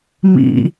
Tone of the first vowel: low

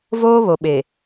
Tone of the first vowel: high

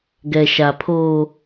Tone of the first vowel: low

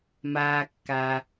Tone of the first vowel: low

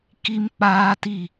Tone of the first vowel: high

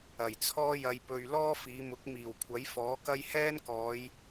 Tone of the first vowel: low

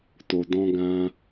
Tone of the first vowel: low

